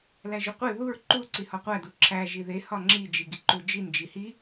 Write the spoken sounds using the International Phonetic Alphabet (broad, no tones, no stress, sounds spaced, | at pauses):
l æ ʒ o qʷ e ð u ɹ ǃ u ǀ i h ɒ qʷ æ d u ǁʰ æ ʒ i ð e h ɒ ŋ͡ǁ i d͡ʒ i ɡ i ǃ u d͡ʒ i n d͡ʒ i h i